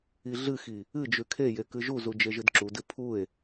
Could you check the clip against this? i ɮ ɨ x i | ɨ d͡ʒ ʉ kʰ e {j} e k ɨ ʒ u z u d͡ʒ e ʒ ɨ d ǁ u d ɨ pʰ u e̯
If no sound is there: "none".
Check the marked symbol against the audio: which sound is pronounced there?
j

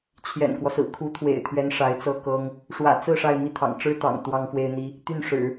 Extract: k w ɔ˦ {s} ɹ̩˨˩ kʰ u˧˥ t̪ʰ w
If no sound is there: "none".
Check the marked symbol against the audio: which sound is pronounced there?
s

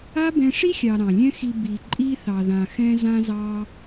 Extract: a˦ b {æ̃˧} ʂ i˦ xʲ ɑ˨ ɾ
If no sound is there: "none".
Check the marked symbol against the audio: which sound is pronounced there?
ɛ̃˧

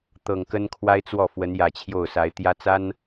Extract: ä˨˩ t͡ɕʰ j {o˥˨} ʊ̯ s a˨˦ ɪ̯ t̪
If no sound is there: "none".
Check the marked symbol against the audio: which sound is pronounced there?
o˥˨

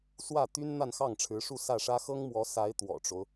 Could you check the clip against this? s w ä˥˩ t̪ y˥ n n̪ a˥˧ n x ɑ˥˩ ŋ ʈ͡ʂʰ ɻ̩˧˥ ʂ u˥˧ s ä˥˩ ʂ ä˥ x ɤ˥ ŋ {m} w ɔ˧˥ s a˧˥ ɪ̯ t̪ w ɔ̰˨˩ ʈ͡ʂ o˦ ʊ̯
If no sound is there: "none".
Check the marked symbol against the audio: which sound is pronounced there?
m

